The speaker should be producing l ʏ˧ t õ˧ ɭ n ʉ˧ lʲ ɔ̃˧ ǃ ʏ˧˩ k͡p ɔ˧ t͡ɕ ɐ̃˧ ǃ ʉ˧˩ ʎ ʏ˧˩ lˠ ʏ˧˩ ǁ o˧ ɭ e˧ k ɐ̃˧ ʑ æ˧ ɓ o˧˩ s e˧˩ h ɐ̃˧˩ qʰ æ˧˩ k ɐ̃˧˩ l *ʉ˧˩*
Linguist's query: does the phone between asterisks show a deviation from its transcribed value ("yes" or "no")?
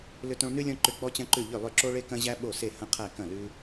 yes